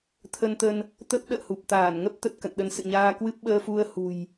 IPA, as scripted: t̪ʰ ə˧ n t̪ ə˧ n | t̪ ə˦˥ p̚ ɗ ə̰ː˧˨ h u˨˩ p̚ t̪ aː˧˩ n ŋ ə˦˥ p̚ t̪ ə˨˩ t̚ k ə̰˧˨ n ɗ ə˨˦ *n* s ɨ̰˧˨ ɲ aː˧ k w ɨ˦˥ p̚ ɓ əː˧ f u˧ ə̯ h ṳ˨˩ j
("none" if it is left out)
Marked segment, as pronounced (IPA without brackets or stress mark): n